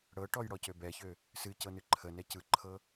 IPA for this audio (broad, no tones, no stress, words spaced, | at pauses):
ɽɤʈɔj ɽɔcøbɛçø | sɨ cɤnɨǃʰənɛ cɯǃʰɤ